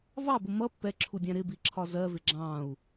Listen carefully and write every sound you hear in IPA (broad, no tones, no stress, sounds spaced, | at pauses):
v ɑ b ʊ m ʌ pː ɛ ǁʰ u dʲ æ̃ ɾ ɪ b i ǁʰ ɒ z ɜ v ɪ ɡ͡ǁ ɑ̃ u̯